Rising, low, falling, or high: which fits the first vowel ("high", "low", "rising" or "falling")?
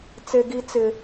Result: high